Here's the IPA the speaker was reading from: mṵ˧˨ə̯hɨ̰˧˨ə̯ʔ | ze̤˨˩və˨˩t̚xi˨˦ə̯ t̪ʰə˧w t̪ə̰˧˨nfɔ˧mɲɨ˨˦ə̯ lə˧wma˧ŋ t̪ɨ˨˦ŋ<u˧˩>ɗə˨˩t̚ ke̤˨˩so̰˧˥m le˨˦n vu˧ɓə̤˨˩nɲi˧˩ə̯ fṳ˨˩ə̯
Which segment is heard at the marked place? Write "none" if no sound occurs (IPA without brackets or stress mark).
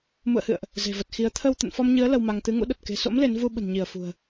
ṵ˧˥